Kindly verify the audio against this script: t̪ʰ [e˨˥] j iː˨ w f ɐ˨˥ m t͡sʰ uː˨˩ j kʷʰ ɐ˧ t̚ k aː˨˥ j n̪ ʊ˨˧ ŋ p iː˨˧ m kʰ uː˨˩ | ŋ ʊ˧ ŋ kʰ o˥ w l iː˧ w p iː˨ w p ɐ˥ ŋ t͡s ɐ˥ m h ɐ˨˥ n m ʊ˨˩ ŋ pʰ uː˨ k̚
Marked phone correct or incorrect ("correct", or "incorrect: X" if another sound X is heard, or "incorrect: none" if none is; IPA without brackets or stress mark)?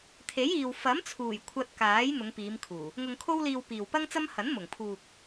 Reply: correct